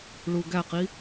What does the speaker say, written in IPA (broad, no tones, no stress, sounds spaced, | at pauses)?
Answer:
ɭ u ɡ æ q i